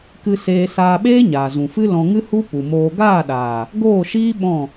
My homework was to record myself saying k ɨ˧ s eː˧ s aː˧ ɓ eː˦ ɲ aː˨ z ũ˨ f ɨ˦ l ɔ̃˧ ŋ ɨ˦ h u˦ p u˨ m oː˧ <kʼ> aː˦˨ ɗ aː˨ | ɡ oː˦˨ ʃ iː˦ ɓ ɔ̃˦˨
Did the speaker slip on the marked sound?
yes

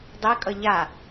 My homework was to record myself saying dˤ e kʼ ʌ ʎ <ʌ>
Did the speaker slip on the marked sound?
yes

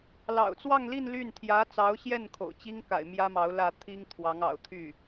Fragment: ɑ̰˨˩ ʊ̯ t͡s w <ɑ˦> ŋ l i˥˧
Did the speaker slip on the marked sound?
yes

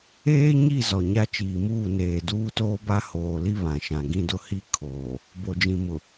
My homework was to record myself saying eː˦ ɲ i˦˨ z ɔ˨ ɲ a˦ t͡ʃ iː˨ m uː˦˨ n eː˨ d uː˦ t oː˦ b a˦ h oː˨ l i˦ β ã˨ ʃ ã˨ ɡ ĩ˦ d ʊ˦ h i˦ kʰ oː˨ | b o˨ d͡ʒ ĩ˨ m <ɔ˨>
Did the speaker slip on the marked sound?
yes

